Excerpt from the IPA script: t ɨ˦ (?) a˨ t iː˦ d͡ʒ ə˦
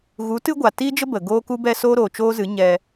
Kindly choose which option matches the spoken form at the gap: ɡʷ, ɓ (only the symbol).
ɡʷ